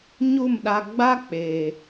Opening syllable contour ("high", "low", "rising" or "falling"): falling